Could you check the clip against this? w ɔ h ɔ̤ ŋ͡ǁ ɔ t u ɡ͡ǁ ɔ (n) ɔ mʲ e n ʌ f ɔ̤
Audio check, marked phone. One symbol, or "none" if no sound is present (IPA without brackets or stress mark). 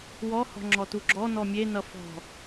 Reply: n